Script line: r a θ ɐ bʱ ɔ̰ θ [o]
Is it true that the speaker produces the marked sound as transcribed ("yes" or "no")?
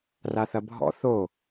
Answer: yes